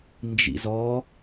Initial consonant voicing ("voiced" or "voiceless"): voiced